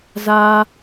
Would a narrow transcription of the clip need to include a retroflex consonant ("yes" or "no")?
no